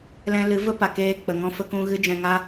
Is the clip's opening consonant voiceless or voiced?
voiced